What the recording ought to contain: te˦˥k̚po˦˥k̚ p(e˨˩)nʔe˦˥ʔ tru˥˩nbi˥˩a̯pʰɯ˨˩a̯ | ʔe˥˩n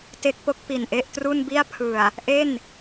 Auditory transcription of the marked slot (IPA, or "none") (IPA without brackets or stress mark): i˨˩